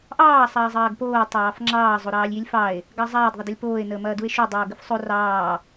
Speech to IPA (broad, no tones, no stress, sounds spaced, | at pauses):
ʔ ɑː sˤ ɐː zˤ ɐː ɡ p oː tˤ ɑː f ŋ͡ǁ ɑː zˤ o ɾ ɑː lʲ j i lʲ f ɑ e̯ | ɡ ɑ zˤ ɐː d ðˤ ə d ɐ lʲ p oː e̯ n əː m ɐː d u e̯ ʃ u dˤ oː ɡ ə f sˤ o r ɑː